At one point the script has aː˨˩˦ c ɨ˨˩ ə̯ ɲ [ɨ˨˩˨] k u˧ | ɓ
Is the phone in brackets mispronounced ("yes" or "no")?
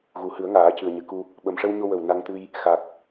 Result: yes